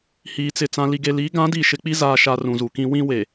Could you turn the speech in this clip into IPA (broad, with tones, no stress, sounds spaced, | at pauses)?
h iː˨ t͡s ɪ˨ t͡s ã˨ l i˨ ɡ e˨ l iː˨˦ ɡ ã˨˦ d iː˨ ʃ ɪ˨ k͡p i˦ z aː˨ ʃ a˨ r ũ˨ z u˨ k ĩ˦ w ĩ˦ w e˨